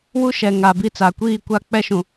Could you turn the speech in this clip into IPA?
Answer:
w u˦ ʃ ɛ˨ ŋ a˨ b i˦ t͡s a˨ kʷ iː˦˨ kʷ a˦˨ k͡p ɛ˦ ʃ ũ˨

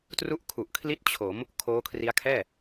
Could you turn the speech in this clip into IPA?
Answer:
t r u˥˩ ʔ kʰ u˨˩ ʔ kʰ l i˥˩ t̚ t͡ɕʰ o˩˦ m | kʰ oː˦˥ kʰ r i˦˥ a̯ kʰ ɛː˥˩

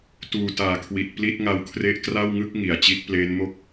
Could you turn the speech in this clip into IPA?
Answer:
t uː˨˩ t aː˨˩ kʰ w i˨˩ t̚ p l i˥˩ t̚ ŋ a˦˥ w kʰ r e˥˩ ʔ k r a˥˩ w ŋ ɯ˥˩ k̚ ŋ i˩˦ a̯ t͡ɕ i˦˥ t̚ p l eː˦˥ n m o˥˩ k̚

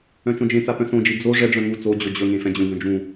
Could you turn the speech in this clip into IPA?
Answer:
œ̃ t͡ʃ õ d͡ʒ ẽ t͡s a p œ̃ s õ d͡ʒ i d͡z o ʐ ɛ ɖ͡ʐ œ̃ ŋ u t͡s o d͡ʑ o d͡ʑ ɵ ŋ ẽ f ɛ̃ d͡ʑ ũ ɡ œ̃ d͡ʒ ũ

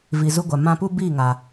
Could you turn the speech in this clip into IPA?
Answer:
v i˨ z u˧ ɡʷ a˨ m ã˧ p u˦ b iː˦˨ ŋ a˨

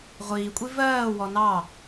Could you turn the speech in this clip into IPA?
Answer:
ʁʷ iː kʷʼ i v ɜː w ɔ n ɑ

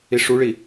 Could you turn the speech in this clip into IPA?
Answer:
i ʂ u ɭ i

